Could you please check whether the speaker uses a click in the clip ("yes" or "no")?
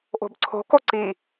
yes